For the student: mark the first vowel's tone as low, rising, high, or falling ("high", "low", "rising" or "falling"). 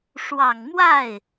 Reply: low